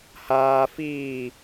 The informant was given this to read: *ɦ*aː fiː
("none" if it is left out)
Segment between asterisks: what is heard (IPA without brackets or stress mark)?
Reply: h